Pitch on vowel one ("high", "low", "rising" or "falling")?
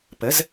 rising